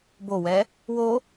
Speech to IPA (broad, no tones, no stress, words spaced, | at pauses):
bowɛ | wo